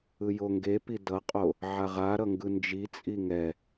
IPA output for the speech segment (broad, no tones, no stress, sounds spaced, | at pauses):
ɯ j o ŋ ɡ e p i d ʌ qʼ o | ʕ a ʁ a ɾ ʌ ŋ ɡ ɯ n d͡ʒ i t͡sʼ i ŋ ɛ